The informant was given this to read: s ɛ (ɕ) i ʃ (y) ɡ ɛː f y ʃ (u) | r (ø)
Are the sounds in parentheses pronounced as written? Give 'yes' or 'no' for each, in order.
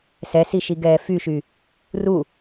no, no, no, no

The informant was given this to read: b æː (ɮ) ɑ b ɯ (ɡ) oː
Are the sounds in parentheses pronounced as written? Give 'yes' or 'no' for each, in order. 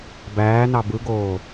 no, yes

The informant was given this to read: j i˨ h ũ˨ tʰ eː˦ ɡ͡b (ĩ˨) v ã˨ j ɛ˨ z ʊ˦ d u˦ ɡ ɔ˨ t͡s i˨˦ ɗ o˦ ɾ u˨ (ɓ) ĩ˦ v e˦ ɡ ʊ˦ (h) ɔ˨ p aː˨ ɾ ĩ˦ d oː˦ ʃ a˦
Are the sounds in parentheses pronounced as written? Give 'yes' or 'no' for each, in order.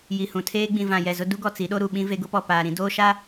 yes, yes, no

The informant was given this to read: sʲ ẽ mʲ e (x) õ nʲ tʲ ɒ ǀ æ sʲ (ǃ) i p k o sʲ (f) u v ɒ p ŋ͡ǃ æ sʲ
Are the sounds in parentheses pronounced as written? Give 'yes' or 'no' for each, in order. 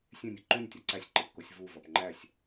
no, yes, no

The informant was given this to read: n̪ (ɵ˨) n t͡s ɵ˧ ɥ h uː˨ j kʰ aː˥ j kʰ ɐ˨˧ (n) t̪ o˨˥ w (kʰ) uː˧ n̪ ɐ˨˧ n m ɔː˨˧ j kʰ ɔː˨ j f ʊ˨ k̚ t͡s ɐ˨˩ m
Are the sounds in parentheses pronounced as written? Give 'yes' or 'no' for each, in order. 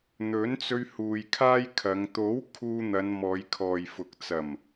no, no, yes

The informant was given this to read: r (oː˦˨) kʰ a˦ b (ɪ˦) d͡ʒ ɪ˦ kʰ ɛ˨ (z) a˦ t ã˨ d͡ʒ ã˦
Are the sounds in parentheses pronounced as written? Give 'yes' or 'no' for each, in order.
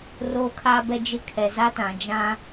no, no, yes

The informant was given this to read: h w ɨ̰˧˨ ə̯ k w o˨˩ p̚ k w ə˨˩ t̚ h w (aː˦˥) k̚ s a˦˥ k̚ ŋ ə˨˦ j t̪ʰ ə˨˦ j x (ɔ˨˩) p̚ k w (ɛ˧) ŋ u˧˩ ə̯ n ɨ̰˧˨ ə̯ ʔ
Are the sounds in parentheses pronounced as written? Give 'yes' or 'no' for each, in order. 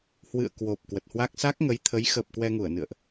yes, no, yes

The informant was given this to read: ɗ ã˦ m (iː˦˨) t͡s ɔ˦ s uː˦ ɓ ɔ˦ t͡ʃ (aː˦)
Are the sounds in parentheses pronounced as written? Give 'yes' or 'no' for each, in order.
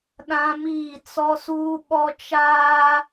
yes, yes

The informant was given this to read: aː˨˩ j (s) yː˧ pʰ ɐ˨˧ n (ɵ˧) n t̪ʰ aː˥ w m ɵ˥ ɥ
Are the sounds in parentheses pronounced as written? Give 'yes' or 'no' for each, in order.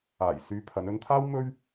yes, yes

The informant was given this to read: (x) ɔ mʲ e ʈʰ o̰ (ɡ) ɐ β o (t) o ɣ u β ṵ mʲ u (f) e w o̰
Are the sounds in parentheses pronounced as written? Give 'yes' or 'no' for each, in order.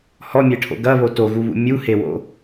no, yes, yes, no

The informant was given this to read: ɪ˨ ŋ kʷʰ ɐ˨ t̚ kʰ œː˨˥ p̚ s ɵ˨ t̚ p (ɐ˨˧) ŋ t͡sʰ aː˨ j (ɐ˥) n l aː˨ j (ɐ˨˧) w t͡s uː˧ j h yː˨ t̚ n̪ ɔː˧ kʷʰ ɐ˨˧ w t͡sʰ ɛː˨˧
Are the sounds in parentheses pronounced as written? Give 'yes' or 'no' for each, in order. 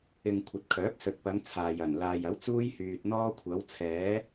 yes, no, no

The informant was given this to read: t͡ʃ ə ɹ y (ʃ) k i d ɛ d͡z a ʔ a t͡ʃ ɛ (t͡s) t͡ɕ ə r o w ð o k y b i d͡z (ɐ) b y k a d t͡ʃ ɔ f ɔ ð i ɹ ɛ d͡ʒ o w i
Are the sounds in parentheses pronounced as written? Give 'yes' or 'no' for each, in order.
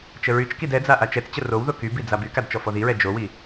no, yes, no

